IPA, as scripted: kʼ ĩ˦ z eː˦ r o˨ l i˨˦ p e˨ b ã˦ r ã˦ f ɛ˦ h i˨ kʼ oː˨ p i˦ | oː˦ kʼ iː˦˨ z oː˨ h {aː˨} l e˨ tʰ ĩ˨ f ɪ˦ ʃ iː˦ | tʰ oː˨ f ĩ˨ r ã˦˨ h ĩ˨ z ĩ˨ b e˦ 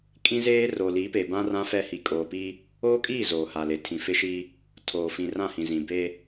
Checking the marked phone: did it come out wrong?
yes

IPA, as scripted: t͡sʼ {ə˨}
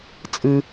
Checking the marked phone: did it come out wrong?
yes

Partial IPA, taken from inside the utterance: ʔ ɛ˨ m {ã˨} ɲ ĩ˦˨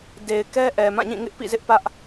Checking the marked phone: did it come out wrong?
yes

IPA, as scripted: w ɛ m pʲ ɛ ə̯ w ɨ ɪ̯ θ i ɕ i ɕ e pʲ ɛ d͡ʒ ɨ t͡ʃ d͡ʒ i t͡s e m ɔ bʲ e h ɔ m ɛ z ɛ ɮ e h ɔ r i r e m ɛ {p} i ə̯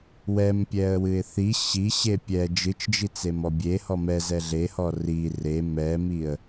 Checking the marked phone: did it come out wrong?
yes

